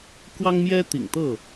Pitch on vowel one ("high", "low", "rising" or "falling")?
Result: high